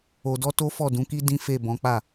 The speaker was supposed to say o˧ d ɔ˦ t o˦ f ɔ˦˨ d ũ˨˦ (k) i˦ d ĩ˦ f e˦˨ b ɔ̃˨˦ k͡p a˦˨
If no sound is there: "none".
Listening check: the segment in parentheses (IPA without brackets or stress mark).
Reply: k